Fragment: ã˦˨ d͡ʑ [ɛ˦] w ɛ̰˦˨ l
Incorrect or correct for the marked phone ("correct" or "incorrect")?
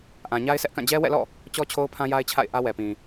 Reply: correct